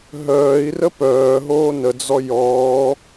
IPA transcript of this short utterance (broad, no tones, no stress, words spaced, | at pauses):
ɦœːi̯rə pœːɦoː nəd͡zɔ jɔː